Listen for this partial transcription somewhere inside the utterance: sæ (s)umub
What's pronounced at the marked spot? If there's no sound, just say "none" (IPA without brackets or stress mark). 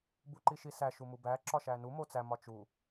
ʃ